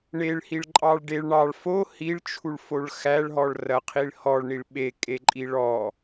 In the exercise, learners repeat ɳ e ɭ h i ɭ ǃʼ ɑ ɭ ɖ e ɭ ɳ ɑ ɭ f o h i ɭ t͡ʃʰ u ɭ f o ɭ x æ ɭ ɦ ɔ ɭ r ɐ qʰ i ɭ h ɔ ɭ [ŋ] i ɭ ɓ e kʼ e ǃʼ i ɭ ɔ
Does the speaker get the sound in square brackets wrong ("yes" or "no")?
yes